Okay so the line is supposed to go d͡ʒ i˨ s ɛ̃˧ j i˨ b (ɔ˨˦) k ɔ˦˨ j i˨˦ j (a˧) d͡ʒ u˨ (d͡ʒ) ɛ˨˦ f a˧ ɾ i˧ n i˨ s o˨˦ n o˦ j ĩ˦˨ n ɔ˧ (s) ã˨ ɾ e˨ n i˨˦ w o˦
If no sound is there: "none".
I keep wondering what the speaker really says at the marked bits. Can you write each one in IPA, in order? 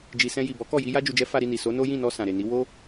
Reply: ɔ˨˦, a˧, d͡ʒ, s

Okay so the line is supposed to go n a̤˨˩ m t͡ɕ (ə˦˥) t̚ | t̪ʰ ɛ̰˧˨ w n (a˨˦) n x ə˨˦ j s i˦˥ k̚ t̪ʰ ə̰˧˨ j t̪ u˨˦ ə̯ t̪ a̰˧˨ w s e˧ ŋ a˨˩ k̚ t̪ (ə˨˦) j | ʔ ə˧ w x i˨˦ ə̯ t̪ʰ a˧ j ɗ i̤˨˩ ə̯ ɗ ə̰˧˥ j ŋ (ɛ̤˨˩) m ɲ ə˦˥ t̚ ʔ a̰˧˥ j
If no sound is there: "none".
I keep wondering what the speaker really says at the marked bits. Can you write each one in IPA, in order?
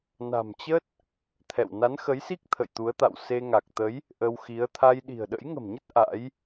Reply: ə˦˥, a˨˦, ə˨˦, ə̤˨˩

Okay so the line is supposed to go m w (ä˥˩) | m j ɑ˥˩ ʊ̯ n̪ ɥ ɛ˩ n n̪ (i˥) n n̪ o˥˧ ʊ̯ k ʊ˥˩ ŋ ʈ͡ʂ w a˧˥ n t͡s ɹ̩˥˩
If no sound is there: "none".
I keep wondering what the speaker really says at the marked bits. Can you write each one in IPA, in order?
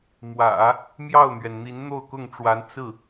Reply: ä̰˨˩˦, i˧˥

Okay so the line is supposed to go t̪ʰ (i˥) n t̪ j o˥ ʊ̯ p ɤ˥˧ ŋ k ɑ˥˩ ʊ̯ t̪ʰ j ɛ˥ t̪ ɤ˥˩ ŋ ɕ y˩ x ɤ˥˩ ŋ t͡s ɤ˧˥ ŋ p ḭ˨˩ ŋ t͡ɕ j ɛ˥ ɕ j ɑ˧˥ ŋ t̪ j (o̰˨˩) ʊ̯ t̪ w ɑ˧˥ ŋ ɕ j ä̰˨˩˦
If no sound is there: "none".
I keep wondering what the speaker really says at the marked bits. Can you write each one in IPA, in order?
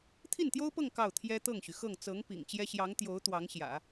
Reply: i˥˩, o˧˥

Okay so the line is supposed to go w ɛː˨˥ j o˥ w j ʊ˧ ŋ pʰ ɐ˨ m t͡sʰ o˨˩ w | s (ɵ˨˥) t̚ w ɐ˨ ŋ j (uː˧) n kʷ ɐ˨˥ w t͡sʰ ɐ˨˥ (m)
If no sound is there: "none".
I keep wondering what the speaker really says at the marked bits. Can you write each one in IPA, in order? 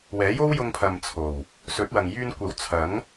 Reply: ɵ˨˥, yː˧, ŋ

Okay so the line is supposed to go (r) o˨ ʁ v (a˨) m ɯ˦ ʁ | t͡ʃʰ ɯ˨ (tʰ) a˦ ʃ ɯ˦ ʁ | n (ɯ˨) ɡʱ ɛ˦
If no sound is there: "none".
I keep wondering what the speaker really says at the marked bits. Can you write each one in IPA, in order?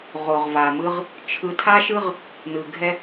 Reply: ʁ, a˨, tʰ, ɯ˨

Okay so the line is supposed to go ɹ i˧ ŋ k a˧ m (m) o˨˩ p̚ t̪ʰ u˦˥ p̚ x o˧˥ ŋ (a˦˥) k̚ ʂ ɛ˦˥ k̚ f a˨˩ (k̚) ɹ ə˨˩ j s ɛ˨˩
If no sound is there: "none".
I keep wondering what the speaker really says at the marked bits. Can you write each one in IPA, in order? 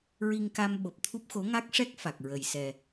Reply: ɓ, a˦˥, k̚

